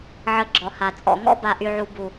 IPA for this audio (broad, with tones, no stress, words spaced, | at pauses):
ʕə˧ɡ͡ǁɔ˨ha˨ t͡sʼɔ̰˨ŋɔ̰˦ ba˨ʔy˨ʕu˨ bu˨